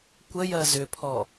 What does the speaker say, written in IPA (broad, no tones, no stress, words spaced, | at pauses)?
kʷəjɜ zʏpʰɔ